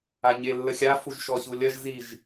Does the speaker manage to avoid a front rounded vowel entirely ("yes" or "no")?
yes